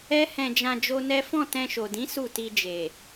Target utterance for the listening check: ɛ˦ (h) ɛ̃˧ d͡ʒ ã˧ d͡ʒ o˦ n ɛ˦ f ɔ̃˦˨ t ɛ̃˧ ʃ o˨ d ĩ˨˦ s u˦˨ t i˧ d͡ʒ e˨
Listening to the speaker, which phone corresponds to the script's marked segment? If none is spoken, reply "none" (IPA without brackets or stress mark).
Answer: h